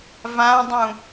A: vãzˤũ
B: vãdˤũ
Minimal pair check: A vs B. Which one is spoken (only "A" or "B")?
B